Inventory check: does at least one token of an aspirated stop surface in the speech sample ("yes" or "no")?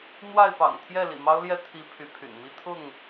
yes